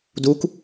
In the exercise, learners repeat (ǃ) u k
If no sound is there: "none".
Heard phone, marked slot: d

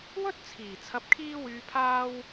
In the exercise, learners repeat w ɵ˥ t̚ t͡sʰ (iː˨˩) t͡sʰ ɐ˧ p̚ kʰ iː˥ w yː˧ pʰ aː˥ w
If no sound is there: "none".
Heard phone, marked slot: iː˨˩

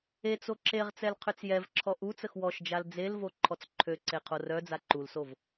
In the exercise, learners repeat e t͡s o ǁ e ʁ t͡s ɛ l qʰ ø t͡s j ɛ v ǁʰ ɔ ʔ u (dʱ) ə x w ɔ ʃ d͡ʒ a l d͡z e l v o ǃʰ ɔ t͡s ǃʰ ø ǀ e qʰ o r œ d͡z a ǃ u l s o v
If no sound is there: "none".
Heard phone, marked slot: t͡s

